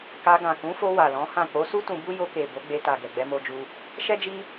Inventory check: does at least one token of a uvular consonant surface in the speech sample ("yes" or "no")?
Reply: no